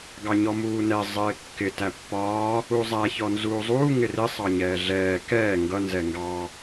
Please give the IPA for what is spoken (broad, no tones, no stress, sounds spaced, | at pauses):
ɡ ɑ ɲ ɔ m uː n ɛ zˤ ɪː kː ɪ t æ pː ɒː | u zˤ æ ç ɔ n z uː zˤ uː ŋ ɪ r ɪ sˤ ɑ ɲ ɛː ɮ ɛː k ɛː ŋ ɡ ʌ n z ɛ ŋ ɡ ɑ